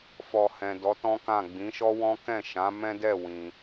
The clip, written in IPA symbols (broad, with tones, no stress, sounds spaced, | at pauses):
f ɔ˨ h ɛ̃˨ d ɔ˨˦ t ɔ̃˦ k ã˦˨ ɡ͡b ĩ˨˦ ʃ ɔ˦ w ɔ̃˦ k ɛ̃˦˨ ʃ ã˨˦ m ɛ̃˦ d ɛ˦˨ w ĩ˧